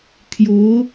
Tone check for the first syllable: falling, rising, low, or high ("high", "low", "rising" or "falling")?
rising